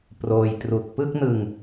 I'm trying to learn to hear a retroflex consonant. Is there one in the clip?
no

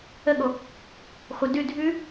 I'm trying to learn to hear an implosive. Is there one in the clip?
yes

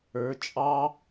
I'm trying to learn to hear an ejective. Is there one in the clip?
yes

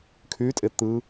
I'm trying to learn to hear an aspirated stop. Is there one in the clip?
yes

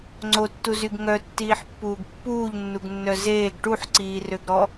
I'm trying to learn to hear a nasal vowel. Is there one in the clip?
no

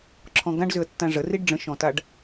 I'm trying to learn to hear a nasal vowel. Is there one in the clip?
yes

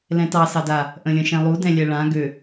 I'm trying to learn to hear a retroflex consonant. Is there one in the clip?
yes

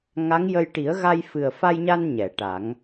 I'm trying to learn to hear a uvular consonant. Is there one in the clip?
no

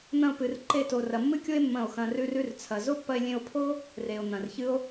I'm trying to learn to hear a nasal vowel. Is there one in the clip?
yes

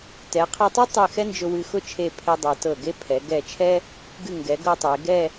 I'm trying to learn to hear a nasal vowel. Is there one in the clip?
no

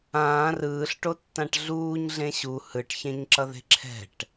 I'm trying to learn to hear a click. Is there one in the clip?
yes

